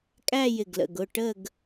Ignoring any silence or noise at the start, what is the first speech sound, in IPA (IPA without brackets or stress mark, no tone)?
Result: kʼ